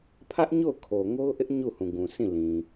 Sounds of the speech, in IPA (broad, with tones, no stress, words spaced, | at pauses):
pʰä˦ʔɲo˦˨ʊ̯ kʰo˨ŋo˦ʊ̯ʔɪ˦ʔ ɲu˦˨hũ˨ɡũ˨ sʰĩ˦˨lĩ˨